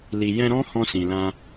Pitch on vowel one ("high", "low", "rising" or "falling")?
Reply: low